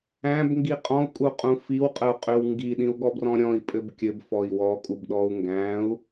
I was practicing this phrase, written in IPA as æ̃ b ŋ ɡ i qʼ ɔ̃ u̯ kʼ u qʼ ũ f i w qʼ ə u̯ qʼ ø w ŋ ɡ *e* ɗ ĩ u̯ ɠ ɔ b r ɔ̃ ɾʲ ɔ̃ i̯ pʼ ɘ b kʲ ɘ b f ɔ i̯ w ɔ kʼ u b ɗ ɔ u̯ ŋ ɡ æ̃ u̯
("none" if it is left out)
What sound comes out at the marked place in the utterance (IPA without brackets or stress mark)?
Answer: i